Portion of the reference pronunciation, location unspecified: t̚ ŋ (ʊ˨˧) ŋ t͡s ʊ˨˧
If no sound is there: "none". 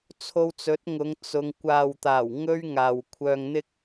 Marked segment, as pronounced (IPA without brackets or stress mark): ʊ˨˧